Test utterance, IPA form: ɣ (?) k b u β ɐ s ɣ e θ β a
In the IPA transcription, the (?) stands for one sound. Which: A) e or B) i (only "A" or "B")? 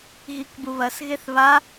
B